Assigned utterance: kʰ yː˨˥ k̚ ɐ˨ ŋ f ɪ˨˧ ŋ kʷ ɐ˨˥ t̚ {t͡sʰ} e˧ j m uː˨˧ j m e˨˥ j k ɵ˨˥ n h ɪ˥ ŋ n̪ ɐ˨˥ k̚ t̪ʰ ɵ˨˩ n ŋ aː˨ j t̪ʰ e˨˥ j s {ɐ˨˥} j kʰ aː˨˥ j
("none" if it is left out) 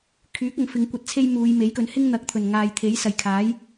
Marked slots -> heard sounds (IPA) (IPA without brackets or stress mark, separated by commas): t͡sʰ, ɐ˨˩